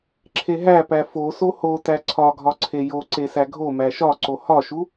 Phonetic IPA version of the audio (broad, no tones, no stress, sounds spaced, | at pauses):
ǁʰ e ɦ æ p æ f o s o h o t æ ǀʰ ɒ ɡʱ ɒ ǀʰ e j o ǀ e s æ ɡʱ o m æ ʃ ɒ ǀ o h ɒ ʃ u